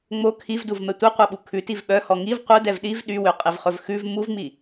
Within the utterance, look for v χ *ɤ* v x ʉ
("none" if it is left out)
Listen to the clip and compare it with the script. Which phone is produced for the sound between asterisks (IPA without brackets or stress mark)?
ɵ